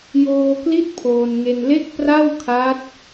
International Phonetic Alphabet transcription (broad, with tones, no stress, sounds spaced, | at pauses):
j oː˧ k l i˦˥ t̚ pʰ oː˧ n ŋ e˧ n l e˥˩ k̚ p r a˥˩ w kʰ a˦˥ t̚